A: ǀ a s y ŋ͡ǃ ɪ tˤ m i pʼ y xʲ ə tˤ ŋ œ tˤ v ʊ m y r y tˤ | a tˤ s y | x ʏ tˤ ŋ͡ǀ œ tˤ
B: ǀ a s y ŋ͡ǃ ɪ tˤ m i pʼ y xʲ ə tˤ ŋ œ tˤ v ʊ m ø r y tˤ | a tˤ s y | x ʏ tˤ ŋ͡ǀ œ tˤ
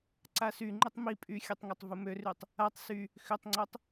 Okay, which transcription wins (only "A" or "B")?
B